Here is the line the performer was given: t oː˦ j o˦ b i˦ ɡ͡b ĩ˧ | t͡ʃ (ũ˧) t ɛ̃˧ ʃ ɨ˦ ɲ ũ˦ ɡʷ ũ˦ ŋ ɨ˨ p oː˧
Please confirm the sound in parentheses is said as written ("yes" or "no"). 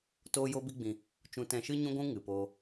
yes